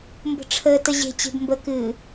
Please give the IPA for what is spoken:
mbə̤ʈ͡ʂʰəːtə ʑe̤t͡ɕe̤b mbəkɨː

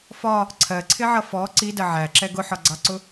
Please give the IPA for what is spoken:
fɒ | ǀʰɜǀʰɪʕʌ fɔ ǀidɜ ʕæǁɛ ɡʊħɒɡ͡ǀɑǀʊ

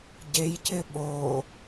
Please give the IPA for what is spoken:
ɟejcɪ ɓo

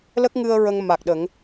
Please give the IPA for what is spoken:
lə˦˥k̚ŋɨ˧ə̯ ɹə˧ŋma˨˩k̚ɗə˨˩˦ŋ

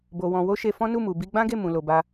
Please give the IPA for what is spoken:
bo˧wɔ̃˧ wo˦ʃe˧ fɔ̃˦nu˦˨ mu˨bi˧ɡ͡bã˦ɡe˦˨ mũ˨lo˨ba˧

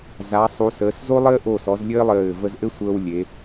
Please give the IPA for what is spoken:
za˩˧sˤu˩˧səː˩˧s zo˥lˠɘː˥ ʔo˧˩sɔ˩˧z lʲɘː˥lˠɘː˧˩ və˧zʔɘ˥sʷəː˧w lʲe˩˧

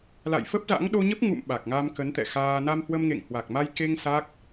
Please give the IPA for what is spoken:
la̰˧˨jfə˦˥p̚za̰˧˥ŋ ɗo˧ɲə˦˥p̚ŋṵ˧˨m ɓa˨˩k̚ŋa˧m kə˨˦nt̪ɛ̰˧˨xaː˧ na˧mhwə˧mŋḛ˧˨ŋ hwa˨˩k̚ma˧jke˧ŋ sa˦˥k̚

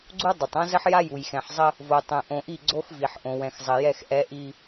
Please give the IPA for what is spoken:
ɡ͡ǀu˦dˤə˨tˤ õ˦zə˦ħja˦ ju˨jxɛ̃˨ħzˤə˦ | vo˨tˤɛ̃˨ʔõ˨ʔi˦˨ ɡ͡ǀo˦xvi˨ħ ʔõ˨wɛ̃˨xzˤɘ˨jɛ˦˨x ʔɛ˦ ʔi˦

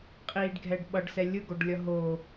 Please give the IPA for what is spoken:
qʼiɖɡʱɛɖ ɓʌɖsɛ lʲɯɡoɖlʲʌ ɦo

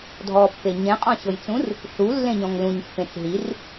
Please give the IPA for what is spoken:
dʱɔpːe ɲẽqʼɔ̃ɕɤjt͡sũr | ɬulːẽɲɔ̃ŋ lũɲpːẽt͡s ɦir

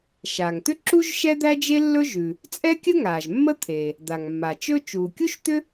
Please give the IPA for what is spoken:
ʃaː˩ŋt̪ʏ˥ ǁu˥ʒ ʃɛ˥d̪æ˥d͡ʒe˥ lːɵ˥ʒʉ˩ | t͡sʼɛ˥kʲə˥ ŋaː˩ʒmːə˥ t̪ʰeː˩ | d̪a˩ŋmːa˩t͡ʃɵ˥ t͡ʃuː˩kʲu˥ʃt̪ʏ˥

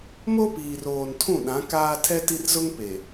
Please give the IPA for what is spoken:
mo˦piː˨roː˨n tʰũ˦˨ɗã˨˦ kaː˦ tʰɛ˦ti˦rzʊ˦ŋ pe˨

